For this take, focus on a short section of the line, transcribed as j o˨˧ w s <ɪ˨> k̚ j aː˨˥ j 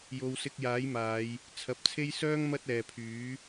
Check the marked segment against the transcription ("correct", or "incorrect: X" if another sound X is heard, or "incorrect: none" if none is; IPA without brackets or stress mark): incorrect: ɪ˧